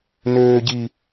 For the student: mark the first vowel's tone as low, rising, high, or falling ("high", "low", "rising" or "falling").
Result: high